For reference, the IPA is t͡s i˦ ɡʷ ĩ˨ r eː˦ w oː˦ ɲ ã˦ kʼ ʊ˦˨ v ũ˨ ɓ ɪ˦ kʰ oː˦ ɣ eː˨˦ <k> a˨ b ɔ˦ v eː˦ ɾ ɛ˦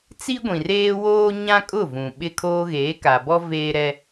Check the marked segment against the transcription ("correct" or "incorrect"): correct